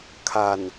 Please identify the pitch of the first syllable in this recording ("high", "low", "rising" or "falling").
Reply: low